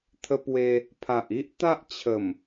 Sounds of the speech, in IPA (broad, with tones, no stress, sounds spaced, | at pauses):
t̪ʰ ə˧ p w e˧ | pʰ a˨ ʔ i˦ ʔ t̪ a˦ ʔ t͡ɕʰ ə˨˩ m